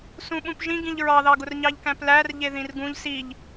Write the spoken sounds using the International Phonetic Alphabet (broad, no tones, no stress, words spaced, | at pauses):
sũɓũpʒĩɡĩʎ ɹɑðɑɡʊr ɲɑʎkæ̃plærʎe ðĩrɡũʎ siʎ